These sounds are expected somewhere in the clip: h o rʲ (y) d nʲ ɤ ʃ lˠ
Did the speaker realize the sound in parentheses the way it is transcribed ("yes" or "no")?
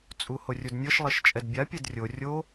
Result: no